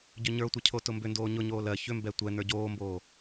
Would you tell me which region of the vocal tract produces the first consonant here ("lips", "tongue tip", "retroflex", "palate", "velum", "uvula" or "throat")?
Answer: palate